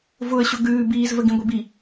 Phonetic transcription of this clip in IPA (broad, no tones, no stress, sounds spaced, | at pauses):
v ʊ ə̯ ɕ ʊ ɡ ʉː b iː z v ə ɡ ĩ ɡʷ i b i